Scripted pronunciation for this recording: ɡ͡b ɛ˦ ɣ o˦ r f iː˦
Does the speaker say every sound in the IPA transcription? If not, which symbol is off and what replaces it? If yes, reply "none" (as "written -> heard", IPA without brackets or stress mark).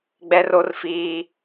ɣ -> r